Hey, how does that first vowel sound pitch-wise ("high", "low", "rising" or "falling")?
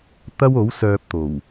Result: high